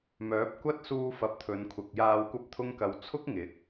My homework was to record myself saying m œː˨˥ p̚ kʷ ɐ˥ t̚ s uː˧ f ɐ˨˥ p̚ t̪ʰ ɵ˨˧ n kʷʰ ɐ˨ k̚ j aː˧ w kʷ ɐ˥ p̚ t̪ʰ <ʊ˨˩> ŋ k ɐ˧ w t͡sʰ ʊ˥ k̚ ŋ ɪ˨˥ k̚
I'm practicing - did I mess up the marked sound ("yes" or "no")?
yes